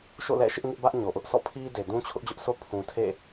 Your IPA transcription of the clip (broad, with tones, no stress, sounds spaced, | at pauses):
ʃ o̰˦˨ l ɛ̰˦˨ ʃ ɪ˦ ʔ ŋ ɪ˦ ʔ b ä˦ ʔ ɲ o˨ ʔ ʊ˦ ʔ s ɔ̰˦˨ pʰ i˦ d e˨ d ũ˦ t͡ɕʰ ʊ˦ ʔ d͡ʑ ʊ˦ ʔ sʰ o˦ pʰ ũ˨ tʰ ḛ˦˨